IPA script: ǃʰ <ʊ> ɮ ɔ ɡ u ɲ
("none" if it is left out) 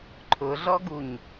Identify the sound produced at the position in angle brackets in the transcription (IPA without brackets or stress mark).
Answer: ʊ